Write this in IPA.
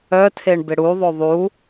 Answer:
œ tʰ e ɳ b ɪ ɽ u ðˤ o ðˤ u

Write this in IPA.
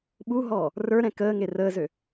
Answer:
ɓ u ɦ ɔː | r ə˞ ɾ ɛ̃ k əː ŋ e r əː z ø

